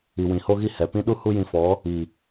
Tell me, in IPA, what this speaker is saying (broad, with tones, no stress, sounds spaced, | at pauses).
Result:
i˨ w ĩ˨ h o˧ ɣ i˧ h ɛ˨ p ĩ˦ ɗ u˦ h u˦ j ĩ˧ f ɔ˨˦ | i˨